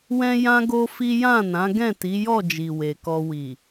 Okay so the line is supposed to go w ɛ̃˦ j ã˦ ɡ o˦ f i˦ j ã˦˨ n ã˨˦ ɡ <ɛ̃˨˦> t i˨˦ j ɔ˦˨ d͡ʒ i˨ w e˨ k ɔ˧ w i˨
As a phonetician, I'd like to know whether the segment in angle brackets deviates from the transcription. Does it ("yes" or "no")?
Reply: yes